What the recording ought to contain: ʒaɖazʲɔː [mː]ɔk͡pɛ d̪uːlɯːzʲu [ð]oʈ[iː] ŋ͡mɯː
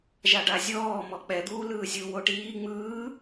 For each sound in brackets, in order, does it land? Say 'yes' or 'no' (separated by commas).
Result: no, no, yes